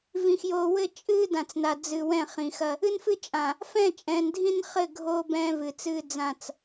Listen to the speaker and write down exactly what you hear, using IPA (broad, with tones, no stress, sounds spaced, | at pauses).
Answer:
v ĩ˨ x j oː˨ w ɘ˦ t͡ʃʼ ɨː˦ d ã˨ t͡s n a˨ d͡z ɨ˨ w ɛ̃˦˨ χ ĩ˨ x ɐ˦ | ɨ˦ n f ɨ˦ t͡ʃʼ ã˨ | f ɛ̃˦˨ t͡ʃʼ ɛ̃ː˨ n dʱ ĩ˦ n χ ɘ˦˨ ɡʱ oː˦ b ɛ̃ː˦ v ɨ˨ t͡s ɨː˦ d͡z ã˦˨ t͡s